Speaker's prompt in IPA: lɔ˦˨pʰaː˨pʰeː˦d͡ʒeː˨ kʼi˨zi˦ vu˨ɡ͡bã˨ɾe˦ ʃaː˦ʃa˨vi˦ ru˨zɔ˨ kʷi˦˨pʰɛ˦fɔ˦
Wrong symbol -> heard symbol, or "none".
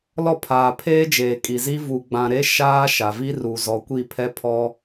f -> pʰ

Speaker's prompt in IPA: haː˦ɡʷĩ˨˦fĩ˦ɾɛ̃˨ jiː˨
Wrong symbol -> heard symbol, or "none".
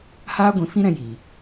ɛ̃˨ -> ɛ̃˧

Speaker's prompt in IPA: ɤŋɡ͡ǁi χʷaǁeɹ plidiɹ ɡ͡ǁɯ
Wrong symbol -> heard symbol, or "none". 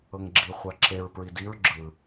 l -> ɹ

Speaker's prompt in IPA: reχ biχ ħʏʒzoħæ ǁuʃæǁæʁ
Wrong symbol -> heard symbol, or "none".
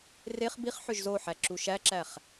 ʁ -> χ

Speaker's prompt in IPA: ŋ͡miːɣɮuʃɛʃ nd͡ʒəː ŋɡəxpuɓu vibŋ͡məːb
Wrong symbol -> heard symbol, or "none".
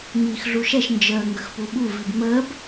ɣ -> x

